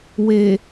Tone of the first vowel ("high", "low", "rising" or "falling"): low